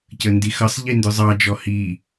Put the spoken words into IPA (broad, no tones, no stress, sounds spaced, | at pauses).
c ə n d i x ʌ sˤ ʎ i n d ʊ zˤ ɑ d͡ʒ ɔ h i